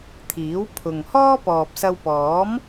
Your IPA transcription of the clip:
t̪ʰ iː˨˥ w pʰ ʊ˨ ŋ h ɔː˥ p ɔː˨ p̚ s ɐ˧ w p ɔː˨˥ m

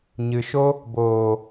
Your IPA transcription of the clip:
ɲ ɨ˨ ʃ o˦ | b oː˨

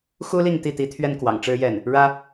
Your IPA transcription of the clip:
x u˥ l i˥˧ ŋ t̪ i˥˩ t̪ i˧˥ t̪ʰ ɥ ɛ˥ n k w ɑ̰˨˩ ŋ ʈ͡ʂ ɻ̩˥ j ɛ˥˩ n | ɻ ä˥

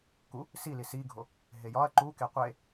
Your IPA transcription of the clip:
k u | s i l i s i ɡʱ o | ɦ e j ɒ ɐ̯ ǃ u k e qʷ e

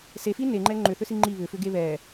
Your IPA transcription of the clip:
s e f i n e ŋ͡ǃ ɛ ŋ͡ǃ ʏ θ ʏ s i ŋ͡ǃ i β ʏ f ʏ ɡ e β ɛ

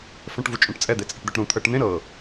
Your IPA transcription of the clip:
f ɛ̃ ʈ v u t͡ʃʼ ũ ʈ t͡sʼ ɛ d̪ e t͡sʼ ɛ ʈ d̪ ɛ ʈ ɾ ũ t̪ʰ ɤ ʈ n̪ ẽ ɾ ɤ

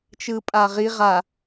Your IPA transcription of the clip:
t͡ʃ ɯ pʼ a ʁ i ʁ a

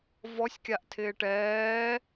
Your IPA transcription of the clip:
v ɔ sʲ kʲ a ʔ tʰ ɪː ʈ ɛː

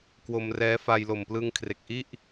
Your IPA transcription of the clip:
k w o˧ m r ɛː˦˥ f a˧ j l o˨˩ m p l ɯ˧ ŋ kʰ r e˨˩ k̚ ʔ i˥˩ ʔ

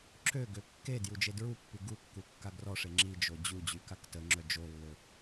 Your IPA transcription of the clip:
ǁ ø ɡ ø kː e d j u d͡ʒ e d ɹ u pː y ɡ u kː u kː a ɡ r ɔ ʂ e ŋ͡ǁ i d͡ʒ o d͡ʑ u d͡ʑ y k a k t ə ŋ͡ǁ œ d͡ʒ o lː ø

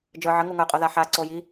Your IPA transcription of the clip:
d͡ʒ ə˞ ʕ ə ŋ u ŋ ə˞ qʼ o ð a ħ a ǀ o j i

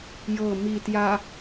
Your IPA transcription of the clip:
j ɤ m i t j a

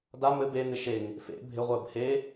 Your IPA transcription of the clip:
d a m ɘ b e n̪ ɪ ʃ e ŋ | f ḛ bʱ ɪ ʁʷ əː b h e

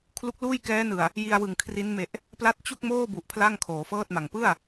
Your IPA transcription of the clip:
kʰ l u˦˥ k̚ l uː˥˩ j k ɛː˦˥ n ɯ˨˩ a̯ | j i˧ a̯ w ɯ˨˩ ŋ kʰ r i˦˥ n m e˨˩ ʔ | p l a˦˥ t̚ t͡ɕ u˥˩ k̚ m oː˥˩ b u˨˩ ʔ pʰ l a˥˩ ŋ kʰ oː˩˦ f ɤː˥˩ t̚ m a˨˩ ŋ p ɯ˥˩ a̯

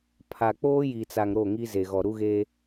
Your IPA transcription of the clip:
pʰ a˨ k͡p oː˦ j i˨ t͡s a˨ ŋ ɾ o˦˨ ŋ i˦ z e˨ ɣ ɔ˨ ɾ u˦ ɣ e˦

